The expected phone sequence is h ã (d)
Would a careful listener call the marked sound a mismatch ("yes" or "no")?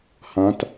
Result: yes